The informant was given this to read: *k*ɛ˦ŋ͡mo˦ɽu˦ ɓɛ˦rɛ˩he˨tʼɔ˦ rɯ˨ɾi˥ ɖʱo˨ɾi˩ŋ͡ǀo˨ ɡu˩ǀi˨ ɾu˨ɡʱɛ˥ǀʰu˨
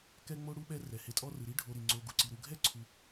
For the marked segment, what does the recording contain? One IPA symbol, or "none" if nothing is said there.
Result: k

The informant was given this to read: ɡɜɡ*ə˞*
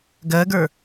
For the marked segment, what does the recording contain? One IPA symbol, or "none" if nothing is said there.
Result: ə˞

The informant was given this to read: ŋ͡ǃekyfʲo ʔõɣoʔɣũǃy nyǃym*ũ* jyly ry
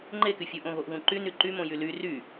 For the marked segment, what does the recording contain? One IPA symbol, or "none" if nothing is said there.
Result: õ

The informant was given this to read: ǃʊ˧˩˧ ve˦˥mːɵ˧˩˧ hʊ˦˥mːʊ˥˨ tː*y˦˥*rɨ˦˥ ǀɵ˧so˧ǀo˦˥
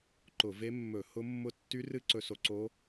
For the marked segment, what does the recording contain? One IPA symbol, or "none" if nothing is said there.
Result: y˦˥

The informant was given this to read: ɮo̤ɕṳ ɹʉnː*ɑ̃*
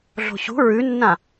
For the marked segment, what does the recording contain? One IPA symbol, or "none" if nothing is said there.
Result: ã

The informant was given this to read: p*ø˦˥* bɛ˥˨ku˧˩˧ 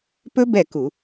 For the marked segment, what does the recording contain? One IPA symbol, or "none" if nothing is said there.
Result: ɵ˦˥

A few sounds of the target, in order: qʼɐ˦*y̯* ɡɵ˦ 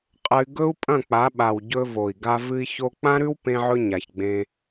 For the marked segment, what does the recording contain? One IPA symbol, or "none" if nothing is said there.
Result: y̯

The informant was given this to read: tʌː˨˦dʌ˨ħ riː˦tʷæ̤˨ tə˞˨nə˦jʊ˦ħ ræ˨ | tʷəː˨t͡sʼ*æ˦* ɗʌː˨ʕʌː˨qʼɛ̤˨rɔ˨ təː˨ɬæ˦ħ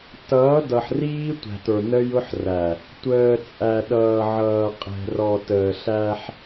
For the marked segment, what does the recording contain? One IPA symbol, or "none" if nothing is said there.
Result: æ˨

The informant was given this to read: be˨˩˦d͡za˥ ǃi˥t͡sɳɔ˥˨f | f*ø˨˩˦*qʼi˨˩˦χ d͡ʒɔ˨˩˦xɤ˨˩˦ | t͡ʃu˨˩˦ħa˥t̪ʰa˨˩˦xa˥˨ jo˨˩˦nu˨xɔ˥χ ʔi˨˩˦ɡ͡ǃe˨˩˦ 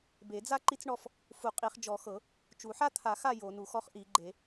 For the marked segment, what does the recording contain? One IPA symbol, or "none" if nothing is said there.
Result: u˨˩˦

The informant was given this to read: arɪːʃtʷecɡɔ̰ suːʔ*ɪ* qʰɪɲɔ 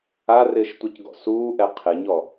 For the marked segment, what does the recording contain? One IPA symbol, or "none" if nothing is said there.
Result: ɛ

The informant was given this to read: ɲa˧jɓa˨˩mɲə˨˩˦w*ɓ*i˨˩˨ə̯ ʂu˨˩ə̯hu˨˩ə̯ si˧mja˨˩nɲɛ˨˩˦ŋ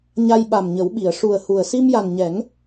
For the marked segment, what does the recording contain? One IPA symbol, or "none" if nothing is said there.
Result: ɓ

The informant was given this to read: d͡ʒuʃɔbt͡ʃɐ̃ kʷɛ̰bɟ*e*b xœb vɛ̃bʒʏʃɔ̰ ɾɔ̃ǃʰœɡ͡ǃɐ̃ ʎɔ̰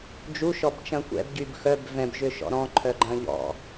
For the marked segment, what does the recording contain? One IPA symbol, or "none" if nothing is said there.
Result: y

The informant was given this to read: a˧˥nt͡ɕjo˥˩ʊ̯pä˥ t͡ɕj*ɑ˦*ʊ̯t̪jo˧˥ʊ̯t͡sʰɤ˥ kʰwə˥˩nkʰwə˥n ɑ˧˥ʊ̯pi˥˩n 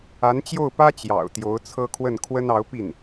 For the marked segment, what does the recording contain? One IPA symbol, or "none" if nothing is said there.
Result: ɑ̰˨˩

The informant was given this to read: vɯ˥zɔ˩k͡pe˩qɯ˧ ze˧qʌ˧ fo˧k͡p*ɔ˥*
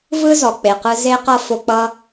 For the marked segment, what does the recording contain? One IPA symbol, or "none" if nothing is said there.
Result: ʌ˥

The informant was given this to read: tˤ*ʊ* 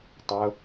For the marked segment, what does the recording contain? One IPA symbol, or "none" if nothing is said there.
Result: ʊ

